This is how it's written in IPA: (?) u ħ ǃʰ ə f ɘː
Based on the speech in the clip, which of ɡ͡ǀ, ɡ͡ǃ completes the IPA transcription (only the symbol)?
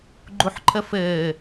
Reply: ɡ͡ǃ